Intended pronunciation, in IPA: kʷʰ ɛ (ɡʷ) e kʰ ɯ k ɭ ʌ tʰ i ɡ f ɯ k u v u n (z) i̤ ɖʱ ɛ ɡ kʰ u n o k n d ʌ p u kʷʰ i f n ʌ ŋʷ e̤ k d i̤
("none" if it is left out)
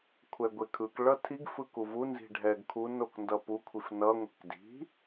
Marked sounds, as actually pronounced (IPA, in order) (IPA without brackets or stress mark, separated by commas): ɡʷ, z